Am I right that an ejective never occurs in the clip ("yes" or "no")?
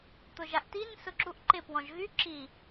yes